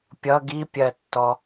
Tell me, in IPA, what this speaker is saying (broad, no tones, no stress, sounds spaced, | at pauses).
pʲ ʌ ɡ i pʲ ɜ tː ɔ